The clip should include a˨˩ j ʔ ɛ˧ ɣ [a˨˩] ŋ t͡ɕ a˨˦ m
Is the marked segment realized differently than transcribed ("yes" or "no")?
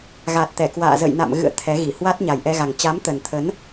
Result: no